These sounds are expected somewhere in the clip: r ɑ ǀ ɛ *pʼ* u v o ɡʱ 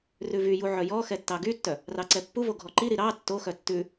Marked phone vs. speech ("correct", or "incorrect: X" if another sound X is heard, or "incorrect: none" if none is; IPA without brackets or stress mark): incorrect: pː